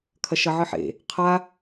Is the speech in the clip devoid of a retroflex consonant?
yes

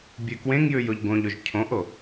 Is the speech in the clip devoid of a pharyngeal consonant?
yes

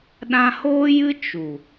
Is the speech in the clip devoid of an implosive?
no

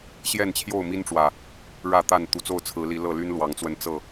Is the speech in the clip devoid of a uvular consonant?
yes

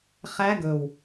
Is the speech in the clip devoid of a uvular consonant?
no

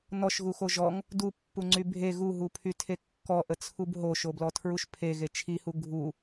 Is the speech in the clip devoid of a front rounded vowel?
no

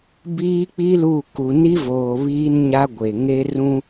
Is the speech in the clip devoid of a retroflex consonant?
yes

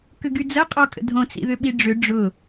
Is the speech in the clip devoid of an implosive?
no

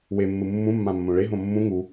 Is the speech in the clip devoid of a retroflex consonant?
no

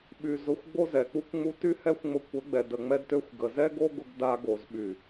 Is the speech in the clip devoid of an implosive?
no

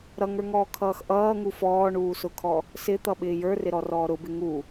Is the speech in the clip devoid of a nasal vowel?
yes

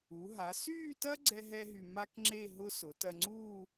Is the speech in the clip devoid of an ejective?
yes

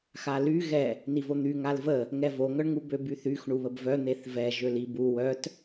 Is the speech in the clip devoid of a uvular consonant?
yes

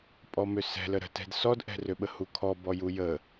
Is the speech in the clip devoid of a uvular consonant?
yes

